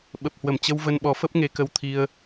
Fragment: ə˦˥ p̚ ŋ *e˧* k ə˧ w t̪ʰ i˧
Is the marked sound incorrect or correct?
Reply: correct